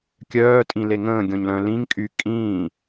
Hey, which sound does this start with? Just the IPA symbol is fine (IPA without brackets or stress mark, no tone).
kʲ